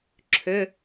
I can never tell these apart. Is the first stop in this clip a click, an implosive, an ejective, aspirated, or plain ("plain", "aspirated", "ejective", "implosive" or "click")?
click